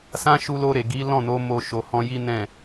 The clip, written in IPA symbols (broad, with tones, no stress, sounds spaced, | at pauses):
s ã˦ ʃ u˧ l o˧ ɾ e˨ ɡ i˨˦ l ɔ̃˦˨ n o˨˦ m o˧ ʃ o˨ h ɔ̃˧ j i˦ n ɛ̃˦˨